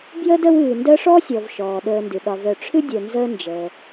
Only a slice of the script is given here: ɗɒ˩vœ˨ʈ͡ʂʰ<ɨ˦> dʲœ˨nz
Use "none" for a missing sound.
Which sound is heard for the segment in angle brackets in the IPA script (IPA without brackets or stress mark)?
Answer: ɨ˦